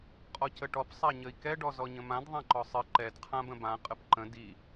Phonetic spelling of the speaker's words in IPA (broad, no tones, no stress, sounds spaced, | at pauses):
qʼ ɔ c ə ʈ ɔ p sˤ a ɲ ə i̯ k ɛ ɖ ɔ z ɔ ɲ ə̃ m ã d ðˤ ã ǃ ɔ sˤ ɨ ǃ ɛ d qʰ ã b ə̃ b ã qʼ ə p ǃ ə̃ d i